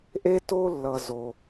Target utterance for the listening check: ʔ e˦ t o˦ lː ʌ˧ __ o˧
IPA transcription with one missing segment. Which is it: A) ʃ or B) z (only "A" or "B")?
B